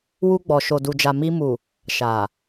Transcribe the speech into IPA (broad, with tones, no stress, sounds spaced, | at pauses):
w u˧ ɡ͡b ɔ˨ ʃ o˨ d u˨ d͡ʒ a˨ m i˧ m u˨ | ʃ a˨